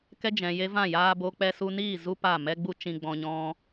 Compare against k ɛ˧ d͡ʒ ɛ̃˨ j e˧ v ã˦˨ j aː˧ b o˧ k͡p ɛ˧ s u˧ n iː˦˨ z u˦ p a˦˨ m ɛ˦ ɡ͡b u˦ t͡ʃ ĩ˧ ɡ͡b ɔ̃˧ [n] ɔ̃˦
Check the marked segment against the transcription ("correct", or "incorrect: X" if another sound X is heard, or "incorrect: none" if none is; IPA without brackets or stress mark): incorrect: ɲ